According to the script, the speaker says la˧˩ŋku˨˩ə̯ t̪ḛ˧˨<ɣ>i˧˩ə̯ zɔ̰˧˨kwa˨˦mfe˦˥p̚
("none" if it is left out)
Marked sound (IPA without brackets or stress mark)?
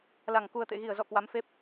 ɣ